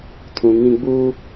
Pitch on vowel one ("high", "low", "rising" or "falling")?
low